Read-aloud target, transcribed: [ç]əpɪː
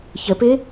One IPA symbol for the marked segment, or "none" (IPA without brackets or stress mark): ç